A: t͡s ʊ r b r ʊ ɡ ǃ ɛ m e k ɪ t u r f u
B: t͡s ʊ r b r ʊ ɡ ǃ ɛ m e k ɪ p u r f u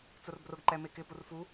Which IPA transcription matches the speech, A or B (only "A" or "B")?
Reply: B